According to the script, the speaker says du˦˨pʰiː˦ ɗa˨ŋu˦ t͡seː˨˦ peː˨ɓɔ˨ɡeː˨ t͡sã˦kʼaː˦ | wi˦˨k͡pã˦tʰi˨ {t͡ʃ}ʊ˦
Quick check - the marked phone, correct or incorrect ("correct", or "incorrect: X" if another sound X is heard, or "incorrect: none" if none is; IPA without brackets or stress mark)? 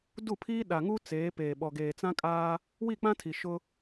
incorrect: ʃ